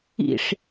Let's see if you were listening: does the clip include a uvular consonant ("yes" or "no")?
no